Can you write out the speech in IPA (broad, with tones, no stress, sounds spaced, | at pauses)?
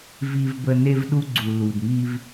v i˦ v b ə˦ n e˦ v ɗ u˦ ɡ͡ǀ u˨ l u˨ d m i˦ v